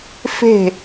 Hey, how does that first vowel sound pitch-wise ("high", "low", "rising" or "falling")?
falling